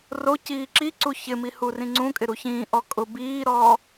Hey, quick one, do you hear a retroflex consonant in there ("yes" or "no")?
no